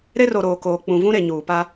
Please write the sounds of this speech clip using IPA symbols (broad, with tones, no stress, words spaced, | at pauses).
ɾe˦ro˨ ɾoː˨koː˨ k͡pũ˨vũ˦ɾe˨ɲuː˨ pa˦